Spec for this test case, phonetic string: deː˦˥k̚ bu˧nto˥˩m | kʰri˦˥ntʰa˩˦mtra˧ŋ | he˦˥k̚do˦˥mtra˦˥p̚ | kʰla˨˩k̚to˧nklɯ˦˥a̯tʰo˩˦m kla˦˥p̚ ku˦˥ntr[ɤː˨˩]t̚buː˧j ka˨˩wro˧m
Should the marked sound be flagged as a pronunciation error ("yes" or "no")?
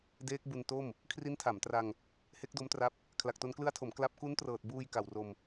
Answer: no